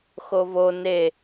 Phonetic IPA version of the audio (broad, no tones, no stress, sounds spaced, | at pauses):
x o v o n e